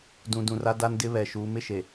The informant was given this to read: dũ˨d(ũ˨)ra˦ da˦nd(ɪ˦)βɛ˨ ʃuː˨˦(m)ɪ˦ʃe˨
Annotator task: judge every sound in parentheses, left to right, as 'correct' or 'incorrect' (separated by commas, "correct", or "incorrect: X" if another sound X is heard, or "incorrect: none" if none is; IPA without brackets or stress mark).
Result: correct, correct, correct